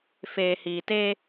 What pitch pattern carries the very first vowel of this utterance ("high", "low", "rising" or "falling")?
low